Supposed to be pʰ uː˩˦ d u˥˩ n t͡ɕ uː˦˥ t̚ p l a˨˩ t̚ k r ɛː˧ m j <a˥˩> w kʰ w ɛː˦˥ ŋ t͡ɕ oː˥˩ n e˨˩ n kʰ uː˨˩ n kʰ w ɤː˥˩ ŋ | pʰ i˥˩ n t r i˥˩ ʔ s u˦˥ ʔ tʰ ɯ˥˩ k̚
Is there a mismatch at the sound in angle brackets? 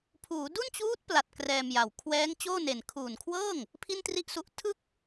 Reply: yes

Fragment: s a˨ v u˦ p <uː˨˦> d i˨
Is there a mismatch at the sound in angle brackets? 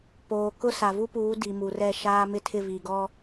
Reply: no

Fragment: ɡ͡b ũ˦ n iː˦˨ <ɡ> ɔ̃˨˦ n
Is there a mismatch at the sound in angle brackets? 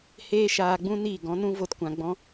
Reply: no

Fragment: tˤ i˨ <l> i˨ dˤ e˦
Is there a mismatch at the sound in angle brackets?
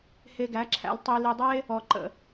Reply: no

